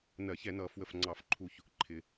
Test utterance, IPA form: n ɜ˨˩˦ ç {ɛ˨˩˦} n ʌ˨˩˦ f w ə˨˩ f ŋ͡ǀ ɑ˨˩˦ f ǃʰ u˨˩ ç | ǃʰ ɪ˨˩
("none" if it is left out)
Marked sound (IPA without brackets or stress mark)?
ɛ˨˩˦